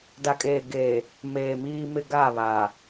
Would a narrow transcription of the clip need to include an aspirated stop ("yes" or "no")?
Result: no